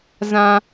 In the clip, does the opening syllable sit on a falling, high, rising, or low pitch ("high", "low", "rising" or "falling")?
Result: high